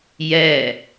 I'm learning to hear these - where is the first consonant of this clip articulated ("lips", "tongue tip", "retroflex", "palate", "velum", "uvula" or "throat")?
palate